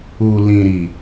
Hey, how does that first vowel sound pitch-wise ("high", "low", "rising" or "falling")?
low